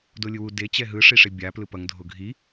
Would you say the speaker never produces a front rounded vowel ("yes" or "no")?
yes